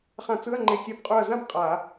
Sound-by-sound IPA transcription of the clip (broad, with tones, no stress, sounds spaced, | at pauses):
χ ã˧˩˧ t͡s ɯ˧˥˧ ɐ̯ ŋ͡ǃ e˧˩ kʲ e˧˩ b qʼ u˧˩ ɐ̯ z ã˥˧ b qʼ a˧˩˧